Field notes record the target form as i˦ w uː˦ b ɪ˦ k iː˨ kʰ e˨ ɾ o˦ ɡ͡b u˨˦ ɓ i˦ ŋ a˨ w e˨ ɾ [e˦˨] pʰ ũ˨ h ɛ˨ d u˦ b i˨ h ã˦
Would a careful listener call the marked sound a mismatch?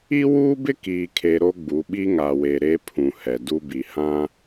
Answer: yes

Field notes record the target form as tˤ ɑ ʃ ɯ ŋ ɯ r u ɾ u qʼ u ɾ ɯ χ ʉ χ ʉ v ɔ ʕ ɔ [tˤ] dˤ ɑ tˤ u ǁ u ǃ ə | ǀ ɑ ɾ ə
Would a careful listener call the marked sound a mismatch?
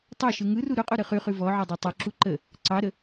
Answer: yes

